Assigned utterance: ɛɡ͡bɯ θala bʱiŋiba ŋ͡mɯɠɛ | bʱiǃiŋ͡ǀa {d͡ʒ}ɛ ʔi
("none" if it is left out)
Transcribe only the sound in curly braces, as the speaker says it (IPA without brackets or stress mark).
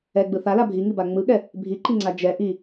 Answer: d͡ʒ